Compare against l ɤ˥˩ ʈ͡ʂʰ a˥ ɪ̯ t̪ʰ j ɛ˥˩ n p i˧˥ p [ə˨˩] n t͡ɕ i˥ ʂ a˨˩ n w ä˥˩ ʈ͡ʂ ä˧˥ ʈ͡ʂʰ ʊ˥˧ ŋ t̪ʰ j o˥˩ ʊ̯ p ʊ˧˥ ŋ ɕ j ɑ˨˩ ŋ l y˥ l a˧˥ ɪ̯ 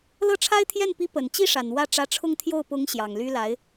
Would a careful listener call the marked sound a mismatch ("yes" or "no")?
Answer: no